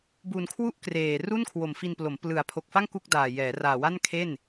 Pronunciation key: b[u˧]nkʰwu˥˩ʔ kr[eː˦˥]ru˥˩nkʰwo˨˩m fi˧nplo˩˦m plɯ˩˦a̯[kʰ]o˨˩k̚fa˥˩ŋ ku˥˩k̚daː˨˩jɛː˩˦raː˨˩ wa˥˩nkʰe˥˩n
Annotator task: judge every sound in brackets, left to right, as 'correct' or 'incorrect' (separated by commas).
correct, incorrect, incorrect